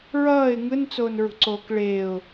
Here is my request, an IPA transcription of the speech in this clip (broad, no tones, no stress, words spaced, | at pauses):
ɹʌːɪ̯ ŋɯnt͡soːnɹṳǀoːk ɭeʊ̯